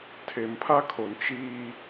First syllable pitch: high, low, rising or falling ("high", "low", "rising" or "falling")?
low